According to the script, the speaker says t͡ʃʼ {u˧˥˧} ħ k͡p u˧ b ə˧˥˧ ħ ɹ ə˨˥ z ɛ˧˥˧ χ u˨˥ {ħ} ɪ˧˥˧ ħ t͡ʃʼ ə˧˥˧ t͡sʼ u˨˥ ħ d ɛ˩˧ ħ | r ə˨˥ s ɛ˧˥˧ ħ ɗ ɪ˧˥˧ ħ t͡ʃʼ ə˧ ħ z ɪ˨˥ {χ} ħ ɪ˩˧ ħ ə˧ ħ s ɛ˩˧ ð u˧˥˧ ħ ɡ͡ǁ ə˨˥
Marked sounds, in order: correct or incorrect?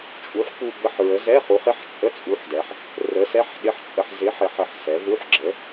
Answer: incorrect, incorrect, incorrect

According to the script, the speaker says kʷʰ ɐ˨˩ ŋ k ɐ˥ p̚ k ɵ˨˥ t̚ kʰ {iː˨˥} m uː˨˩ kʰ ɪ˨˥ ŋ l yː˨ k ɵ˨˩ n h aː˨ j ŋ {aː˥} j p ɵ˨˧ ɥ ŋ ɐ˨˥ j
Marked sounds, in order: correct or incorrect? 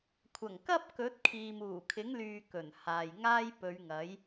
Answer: incorrect, correct

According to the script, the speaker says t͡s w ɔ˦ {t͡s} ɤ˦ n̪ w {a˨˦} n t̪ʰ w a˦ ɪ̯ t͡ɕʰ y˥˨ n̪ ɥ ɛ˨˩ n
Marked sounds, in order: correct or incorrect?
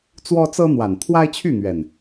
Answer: correct, incorrect

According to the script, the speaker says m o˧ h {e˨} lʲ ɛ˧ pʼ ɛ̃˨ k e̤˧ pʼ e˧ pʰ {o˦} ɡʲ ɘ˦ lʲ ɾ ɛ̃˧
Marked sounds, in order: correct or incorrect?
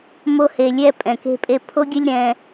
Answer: correct, correct

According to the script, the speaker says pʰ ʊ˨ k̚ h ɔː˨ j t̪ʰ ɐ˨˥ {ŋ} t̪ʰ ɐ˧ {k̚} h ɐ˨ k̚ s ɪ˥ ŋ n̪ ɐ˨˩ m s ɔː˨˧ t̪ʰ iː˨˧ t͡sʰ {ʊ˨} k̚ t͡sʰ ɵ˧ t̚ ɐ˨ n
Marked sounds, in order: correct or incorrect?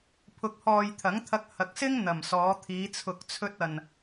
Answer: correct, correct, correct

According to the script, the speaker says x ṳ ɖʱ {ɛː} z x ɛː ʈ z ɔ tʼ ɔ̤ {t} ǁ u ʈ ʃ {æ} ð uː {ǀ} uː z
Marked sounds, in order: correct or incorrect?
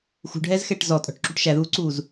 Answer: correct, incorrect, correct, correct

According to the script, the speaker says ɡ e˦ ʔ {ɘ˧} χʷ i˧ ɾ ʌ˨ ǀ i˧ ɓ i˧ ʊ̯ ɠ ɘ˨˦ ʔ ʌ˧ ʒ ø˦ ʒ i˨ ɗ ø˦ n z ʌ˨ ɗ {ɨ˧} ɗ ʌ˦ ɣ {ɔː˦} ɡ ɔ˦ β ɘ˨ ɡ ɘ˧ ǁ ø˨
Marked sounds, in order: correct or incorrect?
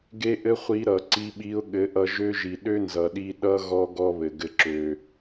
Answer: incorrect, incorrect, incorrect

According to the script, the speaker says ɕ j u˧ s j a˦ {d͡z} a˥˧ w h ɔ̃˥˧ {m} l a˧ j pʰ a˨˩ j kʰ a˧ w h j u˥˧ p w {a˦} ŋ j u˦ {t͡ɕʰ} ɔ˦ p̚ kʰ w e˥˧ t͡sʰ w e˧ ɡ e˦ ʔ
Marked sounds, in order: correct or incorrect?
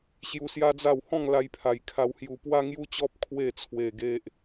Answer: correct, incorrect, correct, incorrect

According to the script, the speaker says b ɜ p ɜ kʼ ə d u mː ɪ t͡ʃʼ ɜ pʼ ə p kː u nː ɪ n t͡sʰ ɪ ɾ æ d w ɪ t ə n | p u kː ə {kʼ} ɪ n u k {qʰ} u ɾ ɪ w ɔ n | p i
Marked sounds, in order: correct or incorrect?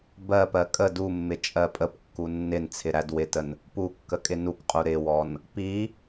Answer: correct, incorrect

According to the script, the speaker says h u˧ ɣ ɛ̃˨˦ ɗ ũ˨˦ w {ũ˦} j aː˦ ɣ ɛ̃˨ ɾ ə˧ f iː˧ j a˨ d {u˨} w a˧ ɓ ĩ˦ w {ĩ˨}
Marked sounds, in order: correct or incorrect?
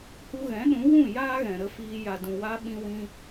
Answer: incorrect, incorrect, incorrect

